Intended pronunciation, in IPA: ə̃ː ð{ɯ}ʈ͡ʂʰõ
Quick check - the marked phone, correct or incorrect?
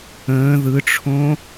correct